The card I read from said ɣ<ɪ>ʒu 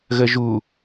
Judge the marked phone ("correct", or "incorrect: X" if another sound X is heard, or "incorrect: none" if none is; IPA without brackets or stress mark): incorrect: ə